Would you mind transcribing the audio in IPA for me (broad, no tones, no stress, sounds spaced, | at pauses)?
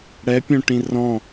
ɽ ɛ pʲ õ ʈ ĩ r ɔ̃